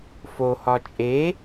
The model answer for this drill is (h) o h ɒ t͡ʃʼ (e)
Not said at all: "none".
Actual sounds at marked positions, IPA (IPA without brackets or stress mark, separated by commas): f, e